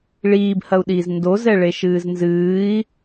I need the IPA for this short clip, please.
ɭ iː b h ɐ u̯ ɗ iː z n d o z ɛ ɭ e ʃ ɨː z n z ɨː i̯

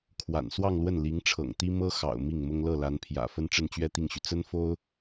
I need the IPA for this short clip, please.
kʰ w a̰˨˩ n s w ɑ˥˧ ŋ l w ə˥˩ n l i˧˥ ŋ ʈ͡ʂʰ ɤ̰˨˩ ŋ t̪ i˥ m ɤ˥ x ɑ̰˨˩ ʊ̯ m i˥˩ ŋ m ʊ˥ ŋ l ɤ˥˩ l a˧˥ n pʰ j ä̰˨˩ f ə˥ n ʈ͡ʂ ə˥˧ n t͡ɕ ɥ ɛ˥˧ t̪ i˥˩ ŋ ɕ y˩ t͡s ə˥ n f o˥ ʊ̯

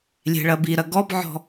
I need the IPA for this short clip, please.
lʲ e̤ ɭ ɐ b i ɾ ɐ ɡ ɔ b ʕ ɔ̤

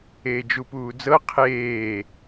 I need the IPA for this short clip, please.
eː d͡ʒ u p uː d͡z ɤ qʰ eː

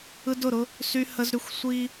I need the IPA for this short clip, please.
ɯ˦ d ʊ˦˨ ɾ ʊ˦ | s y˦ h ə˦ z ɾ y˦ xʷ sʷ i˦

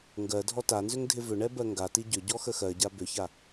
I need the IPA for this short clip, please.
ŋ ɡ ɜ dʱ ɔ t a n z ʏ ŋ dʱ ɪ v ʏ ɳ ɛ b ɜ ŋ ɡ a t i ɟ ʏ ɟ ɔ x ə x ɜ ɟ a b ʏ ç a

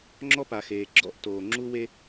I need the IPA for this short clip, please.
ŋ͡ǁ ɔ˥ p a˩ x eː˩ ɡ͡ǁ ɔ̰˥ ʔ t oː˩ ŋ͡ǁ u˥ w e˥

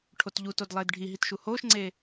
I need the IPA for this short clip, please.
ʈʰ o t ʎ u t o d lˠ eː d ɖʱ i ɦ i t ʃ u h oː ʃ ŋ͡ǀ eː

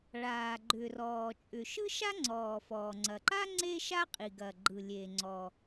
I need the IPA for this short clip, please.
ɭ aː˩ ɡ͡ǃ ʏ˩ r ɔː˩ t͡ʃʼ ʏ˩ ʃ ɯ˥ ʃ a˥ ŋ͡ǀ ɔː˩ f ɔː˩ ŋ͡ǀ ɐ˩ ǃ a˥ ŋ͡ǀ e˥ ʃ a˥ qʼ i˩ ɡ ɐ˩ ɡ͡ǃ ɯ˩ lʲ e˩ ŋ͡ǀ ɔ˩

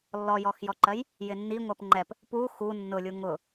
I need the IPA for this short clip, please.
lː ɔ j ɔ x j ɔ ǃ ɜ j | j ɪ nː i ŋʷ ɜ p ŋ͡ǃ ɛ p | p u x u nː ʊ lʲ u ŋ ʊ

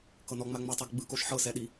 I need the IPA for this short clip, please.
k ɤ n ɔ ŋ͡m a ŋ͡m o tˤ u ɡ ɡ͡b ɯ k o ʃ ħ ɤ s ɛ ɗ i

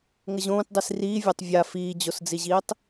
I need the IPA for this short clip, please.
ŋ ə ʑ õː t dˤ i s r iː vʲ a tˤ vʲ a f iː d͡ʑ o s d͡z i ʑ iː tˤ

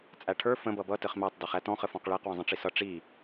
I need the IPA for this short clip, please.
t͡sʼ æ ʈʰ ə˞ f ə̃ b ʌ b ʌ t ə χ m æ tˤ d ʌ χ æ t ɔ̃ χ ə f ɔ̃ q ɭ æ q w ə̃ zˤ ə̃ ʈ͡ʂ i s ʌ ʈ͡ʂ i

